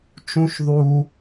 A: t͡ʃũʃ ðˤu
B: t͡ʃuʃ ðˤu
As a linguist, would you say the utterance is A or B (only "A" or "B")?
A